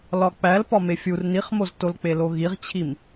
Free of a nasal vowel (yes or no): yes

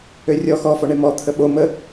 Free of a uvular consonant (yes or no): yes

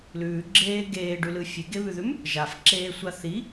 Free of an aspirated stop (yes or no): yes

